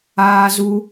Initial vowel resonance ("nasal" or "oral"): oral